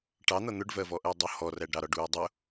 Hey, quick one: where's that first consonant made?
retroflex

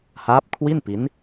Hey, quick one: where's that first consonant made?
throat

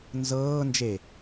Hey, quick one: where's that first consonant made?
tongue tip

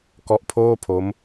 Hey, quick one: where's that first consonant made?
velum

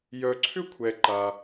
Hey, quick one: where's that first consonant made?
palate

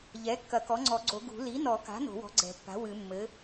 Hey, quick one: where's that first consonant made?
palate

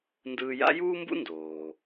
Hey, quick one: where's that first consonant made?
tongue tip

